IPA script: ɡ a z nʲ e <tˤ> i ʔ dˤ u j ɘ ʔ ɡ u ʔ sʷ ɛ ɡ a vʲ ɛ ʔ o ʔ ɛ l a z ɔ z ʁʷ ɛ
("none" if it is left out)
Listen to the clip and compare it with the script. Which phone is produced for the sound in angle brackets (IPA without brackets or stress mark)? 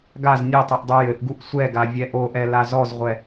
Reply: tˤ